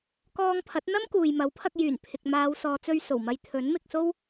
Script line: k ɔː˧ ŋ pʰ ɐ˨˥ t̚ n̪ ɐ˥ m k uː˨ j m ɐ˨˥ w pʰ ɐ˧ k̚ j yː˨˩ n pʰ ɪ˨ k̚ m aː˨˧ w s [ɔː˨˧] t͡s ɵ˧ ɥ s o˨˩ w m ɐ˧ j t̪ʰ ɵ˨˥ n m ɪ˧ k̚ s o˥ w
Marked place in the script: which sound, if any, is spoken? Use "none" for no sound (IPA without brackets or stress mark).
ɔː˨˧